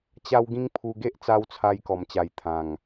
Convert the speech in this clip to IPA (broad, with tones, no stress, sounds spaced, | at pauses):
t͡ɕ a˦ w ɡ ĩ˦ ŋ pʰ u˧ ɡ e˦ ʔ t͡s a˧ w t͡sʰ a˧ j k ɔ˧ m t͡ɕ a˨˩ j t̪ʰ ã˨˩ ŋ